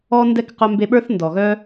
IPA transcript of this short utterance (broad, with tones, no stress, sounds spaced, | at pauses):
ɔ˧ n d ɛ˧ k q œ˧ m b e˧ ɓ ə˞˦ θ n d ɔ˨ ɣ œ˦